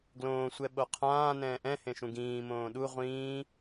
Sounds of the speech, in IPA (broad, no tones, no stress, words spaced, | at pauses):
ɡlõːsʷɛɓo qʰãː nɛ̃ːʔɛ̃hẽʃũ ɡĩː mõːɗu ʁʷĩː